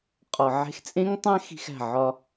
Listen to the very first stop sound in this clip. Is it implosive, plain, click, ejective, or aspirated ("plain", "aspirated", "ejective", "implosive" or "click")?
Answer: ejective